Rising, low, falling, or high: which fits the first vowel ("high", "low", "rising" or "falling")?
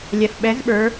low